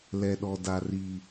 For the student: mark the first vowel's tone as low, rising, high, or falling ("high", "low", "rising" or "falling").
low